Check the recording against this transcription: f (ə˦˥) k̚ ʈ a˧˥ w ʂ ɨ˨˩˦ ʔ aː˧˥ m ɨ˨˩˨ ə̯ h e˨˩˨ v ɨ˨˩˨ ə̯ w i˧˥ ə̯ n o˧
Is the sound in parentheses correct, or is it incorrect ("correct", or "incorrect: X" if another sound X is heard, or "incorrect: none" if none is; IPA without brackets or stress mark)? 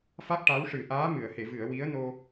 incorrect: a˦˥